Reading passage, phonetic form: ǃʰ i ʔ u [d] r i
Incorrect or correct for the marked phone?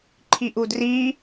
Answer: correct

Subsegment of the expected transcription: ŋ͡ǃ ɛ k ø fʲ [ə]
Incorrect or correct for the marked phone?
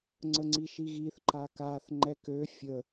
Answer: correct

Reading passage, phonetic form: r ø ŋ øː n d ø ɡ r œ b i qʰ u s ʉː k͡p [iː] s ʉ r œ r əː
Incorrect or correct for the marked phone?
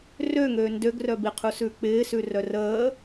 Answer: incorrect: ɪː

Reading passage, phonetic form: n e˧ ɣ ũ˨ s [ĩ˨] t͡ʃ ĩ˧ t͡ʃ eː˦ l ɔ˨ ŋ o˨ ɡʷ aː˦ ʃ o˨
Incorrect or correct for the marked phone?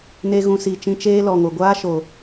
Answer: incorrect: i˨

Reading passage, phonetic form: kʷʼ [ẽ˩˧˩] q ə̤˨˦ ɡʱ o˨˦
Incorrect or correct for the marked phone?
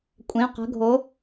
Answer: correct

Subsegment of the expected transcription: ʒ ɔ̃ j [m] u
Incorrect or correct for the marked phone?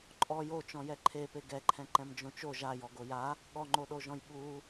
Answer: incorrect: ɓ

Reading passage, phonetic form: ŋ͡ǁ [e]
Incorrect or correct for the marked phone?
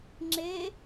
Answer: correct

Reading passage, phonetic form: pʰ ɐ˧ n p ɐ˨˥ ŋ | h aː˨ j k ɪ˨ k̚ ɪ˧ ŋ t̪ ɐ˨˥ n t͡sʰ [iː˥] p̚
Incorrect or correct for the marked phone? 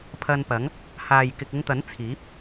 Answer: incorrect: iː˨˥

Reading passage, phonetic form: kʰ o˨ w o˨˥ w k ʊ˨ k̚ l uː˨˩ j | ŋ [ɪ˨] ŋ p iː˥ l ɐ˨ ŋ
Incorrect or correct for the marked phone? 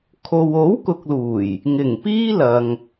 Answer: incorrect: ɪ˨˩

